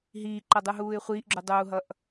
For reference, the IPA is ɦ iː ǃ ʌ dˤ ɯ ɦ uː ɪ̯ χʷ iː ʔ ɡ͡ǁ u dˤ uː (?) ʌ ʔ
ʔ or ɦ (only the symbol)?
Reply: ɦ